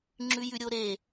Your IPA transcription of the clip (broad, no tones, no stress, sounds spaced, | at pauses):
ŋ͡ǁ ʉ j ʉ ɾʲ o ɾ e